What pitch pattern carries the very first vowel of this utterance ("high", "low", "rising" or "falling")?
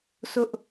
high